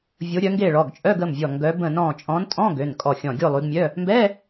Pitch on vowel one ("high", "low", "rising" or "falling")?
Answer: rising